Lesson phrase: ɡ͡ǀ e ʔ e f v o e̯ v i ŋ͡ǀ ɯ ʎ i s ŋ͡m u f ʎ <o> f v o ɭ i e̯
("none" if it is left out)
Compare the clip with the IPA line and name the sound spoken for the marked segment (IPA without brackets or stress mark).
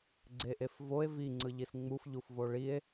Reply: u